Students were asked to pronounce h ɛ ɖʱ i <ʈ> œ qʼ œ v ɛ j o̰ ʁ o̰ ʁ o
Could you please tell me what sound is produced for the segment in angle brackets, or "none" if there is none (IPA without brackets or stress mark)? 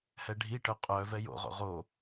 ʈ